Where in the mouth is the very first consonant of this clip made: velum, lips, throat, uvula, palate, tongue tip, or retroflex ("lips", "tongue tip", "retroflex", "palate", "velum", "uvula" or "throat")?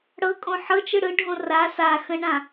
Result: retroflex